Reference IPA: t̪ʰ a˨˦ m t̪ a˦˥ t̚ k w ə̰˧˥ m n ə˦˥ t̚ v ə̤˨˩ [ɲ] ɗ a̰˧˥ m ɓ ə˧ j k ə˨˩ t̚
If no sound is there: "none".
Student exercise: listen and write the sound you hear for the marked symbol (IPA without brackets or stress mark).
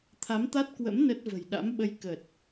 j